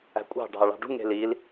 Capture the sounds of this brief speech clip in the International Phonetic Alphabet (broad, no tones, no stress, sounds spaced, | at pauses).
æ̤ kʷʼ ɑ̤ ɖʱ ɑ ɭ ɑ̤ ɖ ṳ ŋ e̤ l i l